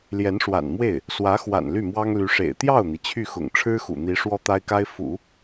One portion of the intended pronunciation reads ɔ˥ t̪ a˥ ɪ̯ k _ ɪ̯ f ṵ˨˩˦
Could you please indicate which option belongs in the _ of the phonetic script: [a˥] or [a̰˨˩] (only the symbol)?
a˥